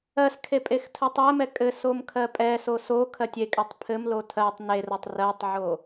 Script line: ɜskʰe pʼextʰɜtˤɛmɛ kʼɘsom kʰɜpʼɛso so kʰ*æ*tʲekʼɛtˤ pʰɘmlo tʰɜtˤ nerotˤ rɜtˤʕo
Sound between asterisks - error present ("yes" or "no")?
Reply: yes